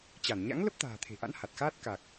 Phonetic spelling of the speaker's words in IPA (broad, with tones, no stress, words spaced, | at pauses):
t͡ɕa˧˩nɲa̰˧˥ŋ lə˦˥p̚t̪a̤ː˨˩t̪ʰe̤˨˩ʔa̰˧˥n ha˨˩t̚xaː˦˥t̚ ka˨˩k̚